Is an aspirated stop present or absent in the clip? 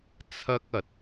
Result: present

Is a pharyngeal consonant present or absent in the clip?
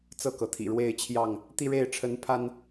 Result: absent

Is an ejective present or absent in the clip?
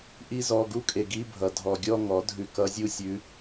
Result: present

